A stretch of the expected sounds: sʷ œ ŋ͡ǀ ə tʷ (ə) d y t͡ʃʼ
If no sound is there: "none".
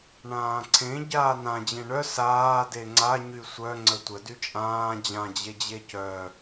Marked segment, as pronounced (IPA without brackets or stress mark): ə